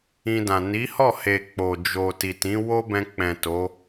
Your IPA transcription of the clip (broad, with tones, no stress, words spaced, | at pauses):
ĩ˧dã˨ ni˨˦hɔ˦˨he˨ k͡po˨ d͡ʒo˨ ti˨tĩ˨˦ wo˦bɛ̃˧ k͡pɛ̃˨ to˨˦